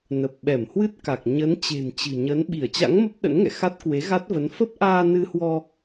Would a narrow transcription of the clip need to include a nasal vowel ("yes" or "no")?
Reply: no